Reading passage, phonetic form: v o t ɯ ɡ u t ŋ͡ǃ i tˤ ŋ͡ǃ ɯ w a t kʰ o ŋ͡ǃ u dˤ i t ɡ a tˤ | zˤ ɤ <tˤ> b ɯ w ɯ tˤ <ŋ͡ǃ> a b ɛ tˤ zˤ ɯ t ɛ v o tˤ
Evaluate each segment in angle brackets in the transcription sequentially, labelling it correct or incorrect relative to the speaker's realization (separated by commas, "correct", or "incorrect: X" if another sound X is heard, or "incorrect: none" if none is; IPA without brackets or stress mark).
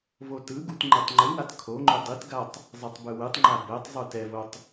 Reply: correct, correct